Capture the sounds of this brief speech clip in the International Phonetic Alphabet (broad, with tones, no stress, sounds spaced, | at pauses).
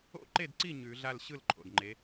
o̰˥˨ ǃ e˥˨ d ǀ i˥˨ ɲ ʉ˨˩˦ ɮ a˥˨ l ɕ ɯ˥˨ l ǃʰ o̰˩ d ŋ͡ǃ e˨˦